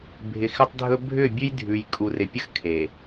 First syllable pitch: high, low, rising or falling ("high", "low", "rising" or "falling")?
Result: low